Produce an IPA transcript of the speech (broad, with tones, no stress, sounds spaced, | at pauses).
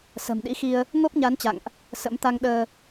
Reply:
s ə̤˨˩ m ɗ ḭ˧˥ x i˧ ə̯ | ŋ o˦˥ p̚ ɲ a˨˦ n t͡ɕ a̰˧˨ ŋ ʔ | s ə̰˧˥ m t̪ a˧ ŋ ɗ əː˧